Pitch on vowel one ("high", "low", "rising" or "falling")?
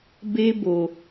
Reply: high